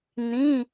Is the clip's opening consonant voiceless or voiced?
voiced